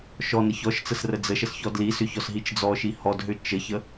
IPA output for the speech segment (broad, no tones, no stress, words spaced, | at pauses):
ʃɔ nəçɔʃt͡səs rəd͡zəʃəs çɔdlisʏ çɔsɦit͡ʃd͡zɔʃi hɔdɦʏ t͡ʃəçə